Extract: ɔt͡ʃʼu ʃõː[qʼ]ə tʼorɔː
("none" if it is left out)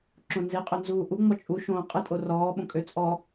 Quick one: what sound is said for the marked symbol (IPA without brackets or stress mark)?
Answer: qʼ